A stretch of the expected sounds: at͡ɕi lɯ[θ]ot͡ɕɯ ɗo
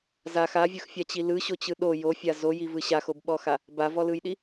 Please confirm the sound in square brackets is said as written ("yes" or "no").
no